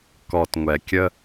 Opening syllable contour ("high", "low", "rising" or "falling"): low